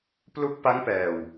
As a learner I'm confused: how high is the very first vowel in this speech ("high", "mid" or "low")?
high